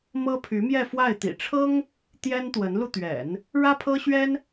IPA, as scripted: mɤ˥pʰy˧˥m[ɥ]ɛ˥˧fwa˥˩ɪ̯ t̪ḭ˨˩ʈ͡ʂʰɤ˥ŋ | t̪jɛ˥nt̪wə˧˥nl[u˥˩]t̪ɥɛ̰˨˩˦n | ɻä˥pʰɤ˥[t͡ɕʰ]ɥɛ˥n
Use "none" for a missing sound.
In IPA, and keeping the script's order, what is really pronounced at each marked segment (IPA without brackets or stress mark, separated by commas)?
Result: j, u˧, ɕ